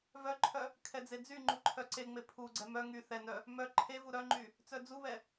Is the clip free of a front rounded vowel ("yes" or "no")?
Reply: no